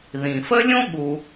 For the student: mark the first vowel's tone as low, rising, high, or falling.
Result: low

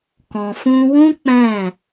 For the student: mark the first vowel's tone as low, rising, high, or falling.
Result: low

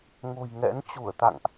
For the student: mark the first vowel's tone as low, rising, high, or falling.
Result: low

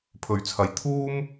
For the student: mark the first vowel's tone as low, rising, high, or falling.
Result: rising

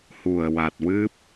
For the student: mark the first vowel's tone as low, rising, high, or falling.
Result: low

